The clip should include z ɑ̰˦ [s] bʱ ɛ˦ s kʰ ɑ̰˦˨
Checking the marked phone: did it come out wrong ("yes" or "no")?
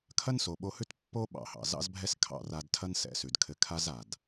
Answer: yes